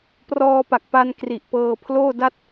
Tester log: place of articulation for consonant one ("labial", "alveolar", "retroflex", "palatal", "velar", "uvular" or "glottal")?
labial